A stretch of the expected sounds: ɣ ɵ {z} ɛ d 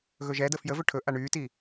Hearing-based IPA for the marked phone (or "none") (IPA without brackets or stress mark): ʒ